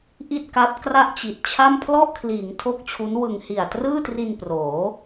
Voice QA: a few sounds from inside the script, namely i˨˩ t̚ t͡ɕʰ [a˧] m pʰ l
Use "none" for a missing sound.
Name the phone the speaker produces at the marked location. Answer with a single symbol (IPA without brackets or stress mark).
a˥˩